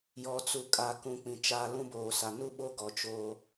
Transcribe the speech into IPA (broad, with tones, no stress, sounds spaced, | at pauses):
j ɔ˨ t͡s u˨ kʼ a˨ k ũ˨ k͡p ĩ˨ t͡ʃ aː˦ l ũ˦ b oː˨ s a˨ n u˦ ɓ o˦ ɡ ɔ˨ t͡ʃ o˦